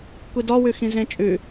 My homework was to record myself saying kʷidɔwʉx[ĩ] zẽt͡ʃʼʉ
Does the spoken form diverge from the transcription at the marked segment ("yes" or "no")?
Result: no